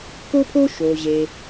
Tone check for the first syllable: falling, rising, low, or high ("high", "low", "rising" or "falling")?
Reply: high